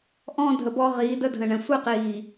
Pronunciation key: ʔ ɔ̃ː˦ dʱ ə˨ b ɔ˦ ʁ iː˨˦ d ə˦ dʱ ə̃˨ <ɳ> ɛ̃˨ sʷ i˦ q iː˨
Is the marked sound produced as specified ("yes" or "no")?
yes